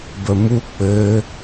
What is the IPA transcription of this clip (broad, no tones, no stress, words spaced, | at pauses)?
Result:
bəmu k͡pɘ